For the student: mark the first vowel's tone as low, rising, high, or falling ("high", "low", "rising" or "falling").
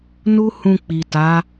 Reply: high